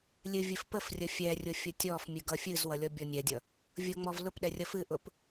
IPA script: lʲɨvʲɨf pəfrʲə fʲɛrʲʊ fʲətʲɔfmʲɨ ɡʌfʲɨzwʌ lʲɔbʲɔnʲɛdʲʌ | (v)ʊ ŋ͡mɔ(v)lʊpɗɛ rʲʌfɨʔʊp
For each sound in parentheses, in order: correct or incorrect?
incorrect, correct

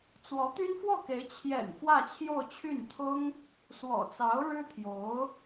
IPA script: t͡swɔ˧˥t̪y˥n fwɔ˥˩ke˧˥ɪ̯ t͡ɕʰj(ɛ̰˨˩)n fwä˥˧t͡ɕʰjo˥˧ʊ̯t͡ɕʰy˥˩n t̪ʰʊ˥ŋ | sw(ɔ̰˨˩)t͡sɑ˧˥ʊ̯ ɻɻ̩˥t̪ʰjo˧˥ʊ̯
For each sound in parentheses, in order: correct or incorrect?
correct, correct

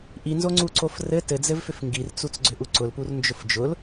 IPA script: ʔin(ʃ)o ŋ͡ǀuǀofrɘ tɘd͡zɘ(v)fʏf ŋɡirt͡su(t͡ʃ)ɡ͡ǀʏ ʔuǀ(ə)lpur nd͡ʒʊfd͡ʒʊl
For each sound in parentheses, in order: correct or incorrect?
incorrect, correct, incorrect, incorrect

